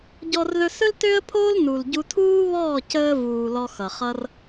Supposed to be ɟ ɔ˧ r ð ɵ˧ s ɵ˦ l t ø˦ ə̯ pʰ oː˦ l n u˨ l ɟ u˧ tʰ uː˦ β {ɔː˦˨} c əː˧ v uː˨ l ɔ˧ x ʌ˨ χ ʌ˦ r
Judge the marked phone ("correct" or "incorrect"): correct